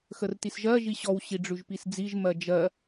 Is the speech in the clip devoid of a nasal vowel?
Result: yes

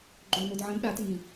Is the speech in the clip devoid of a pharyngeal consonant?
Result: no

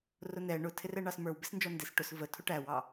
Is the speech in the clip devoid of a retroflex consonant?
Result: no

